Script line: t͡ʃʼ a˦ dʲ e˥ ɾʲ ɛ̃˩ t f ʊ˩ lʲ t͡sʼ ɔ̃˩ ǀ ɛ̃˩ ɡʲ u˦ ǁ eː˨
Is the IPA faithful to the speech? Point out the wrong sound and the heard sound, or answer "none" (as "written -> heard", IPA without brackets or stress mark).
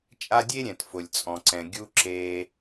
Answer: none